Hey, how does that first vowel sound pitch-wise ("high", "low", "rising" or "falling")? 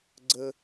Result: high